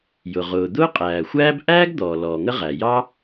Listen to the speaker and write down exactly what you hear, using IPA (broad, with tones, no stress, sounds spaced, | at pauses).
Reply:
j ʊ˩ ʁ ʊː˩ d̪ ʊː˥ qʼ æː˩ xʷ æː˥ b ʔ æː˥ ɡ d̪ ɔː˩ l ɔː˩ ŋ ə˥ ʁ æ˩ j ɑ˥